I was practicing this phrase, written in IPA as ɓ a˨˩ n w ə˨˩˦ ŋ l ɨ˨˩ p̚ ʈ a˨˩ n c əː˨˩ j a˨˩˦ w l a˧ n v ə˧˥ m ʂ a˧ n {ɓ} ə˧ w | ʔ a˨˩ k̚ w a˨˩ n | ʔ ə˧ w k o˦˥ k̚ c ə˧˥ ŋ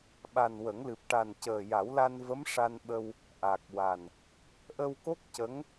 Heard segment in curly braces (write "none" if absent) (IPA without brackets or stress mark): ɓ